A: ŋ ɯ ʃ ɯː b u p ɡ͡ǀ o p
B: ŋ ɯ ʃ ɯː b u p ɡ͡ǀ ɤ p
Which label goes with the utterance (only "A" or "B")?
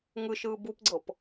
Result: B